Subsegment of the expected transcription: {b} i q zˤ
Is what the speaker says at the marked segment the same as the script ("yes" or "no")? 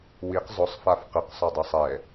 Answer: no